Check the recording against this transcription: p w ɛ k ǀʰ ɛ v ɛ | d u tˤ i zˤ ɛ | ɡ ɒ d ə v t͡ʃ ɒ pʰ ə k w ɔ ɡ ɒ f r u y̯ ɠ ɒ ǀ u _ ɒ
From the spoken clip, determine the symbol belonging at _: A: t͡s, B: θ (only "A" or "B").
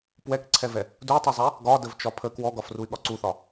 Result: B